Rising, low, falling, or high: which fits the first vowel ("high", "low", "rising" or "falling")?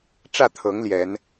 falling